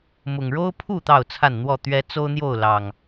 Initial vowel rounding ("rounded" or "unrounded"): rounded